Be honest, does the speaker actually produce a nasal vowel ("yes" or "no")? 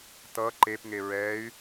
no